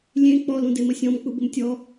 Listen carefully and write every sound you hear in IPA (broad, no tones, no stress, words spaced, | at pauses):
lʲẽ k͡pɔlũdemə sʲɔ̃mk͡pubɤm tʲɔ